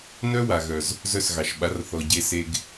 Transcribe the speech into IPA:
n œ˦ w a˨ ɣ œ˨ z | z œ˦˨ s ɣ ɑ˨ ʃ ɓ a˨˦ r θ ɔ˨ ɟ e˧ s e˧ ɡ

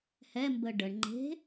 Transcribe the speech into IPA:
h ɛ m b ə ɖ ə ɳ ŋ͡ǃ e̤

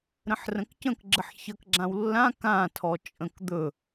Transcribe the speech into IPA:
ɾ ə̃ ħ r ə̃ k c ə̃ k ɡ͡ǁ ə ħ ç ə k ɡ͡ǁ ã w lː ã k ã tʰ ɔ t͡ʃʼ ə̃ k d̪ ɵ

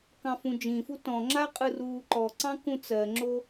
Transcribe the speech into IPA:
k ɑ̃ f ũ d͡ʒ ĩ f u t ɔ̃ ŋ͡ǁ a qʼ ɯ r uː ǃ ɔ ǀ ɑ̃ k ũ t͡s ɜ ŋ͡ǁ o

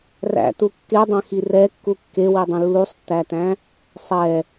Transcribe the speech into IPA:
r æ̰ t u kː e dˤ æ̃ x i r ɛ kː u kː e w i dˤ ũ lː u sˤ tː æ t æ̃ | sˤ ɛ

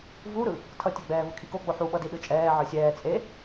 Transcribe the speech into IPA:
v u ɾ ɯ | tʰ ʌ tʲ ɛ ɡ͡b ɛː v ɯ kʰ i k o ɡ͡b o ħ u ɓ ʌ d i ɗ ɯ t͡ʃʼ ɛː ʕ ɯ sʲ ɛː t͡sʼ e

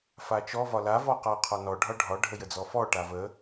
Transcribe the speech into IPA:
f a t͡ʃ ɔ v ɒ l a v ɔ q a qʰ ɒ n ɔ ɖʱ ɒ ɖʱ ɒ ɖʱ ə j ə d͡z ɔ f ɔ ʈ a v ə

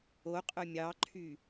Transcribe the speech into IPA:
o qʼ œ mʲ ɑ ǃʰ y

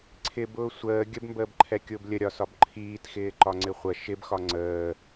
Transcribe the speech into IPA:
ǀʰ ɪ b ʊː sʷ əː ɡʲ ə b m b əː b ǃʰ ɛ kʲ ʊː b lʲ ə ɾʲ ɒ s ɒ b ǃʰ iː t x ɪː ǃ ɒ ŋ͡ǀ ɪ χʷ ə ʃ ɪ b x ɒ ŋ͡ǀ əː

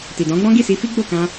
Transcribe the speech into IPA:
t i˨ d ɔ̃˨˦ ɡ͡b ɔ̃˦ ɡ i˦˨ s i˧ f i˦ ɡ͡b o˦˨ k ã˧

